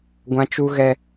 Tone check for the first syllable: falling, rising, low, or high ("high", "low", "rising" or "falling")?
high